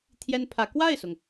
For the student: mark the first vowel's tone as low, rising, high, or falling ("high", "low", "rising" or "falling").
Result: high